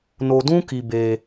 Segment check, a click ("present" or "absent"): absent